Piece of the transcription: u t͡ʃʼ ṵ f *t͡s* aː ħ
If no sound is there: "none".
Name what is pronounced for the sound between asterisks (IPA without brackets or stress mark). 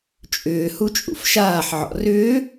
ʃ